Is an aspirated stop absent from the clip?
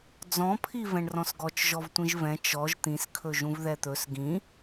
no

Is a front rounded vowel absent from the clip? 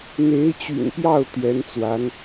no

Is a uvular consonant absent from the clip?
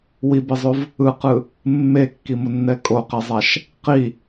no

